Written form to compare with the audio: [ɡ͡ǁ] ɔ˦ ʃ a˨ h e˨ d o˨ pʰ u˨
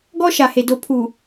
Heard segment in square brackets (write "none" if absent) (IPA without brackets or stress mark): ɡ